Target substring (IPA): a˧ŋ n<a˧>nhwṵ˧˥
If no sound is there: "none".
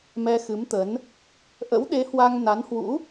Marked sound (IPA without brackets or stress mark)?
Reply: a˨˦